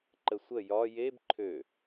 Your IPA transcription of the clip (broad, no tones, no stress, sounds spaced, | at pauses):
ǃ ə sʷ ə j ɒ j e b ǃʰ ø